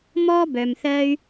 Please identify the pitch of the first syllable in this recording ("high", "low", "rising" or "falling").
high